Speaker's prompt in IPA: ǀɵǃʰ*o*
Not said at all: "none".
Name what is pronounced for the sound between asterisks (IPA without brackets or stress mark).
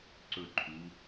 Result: u